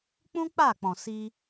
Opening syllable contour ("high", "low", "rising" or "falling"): high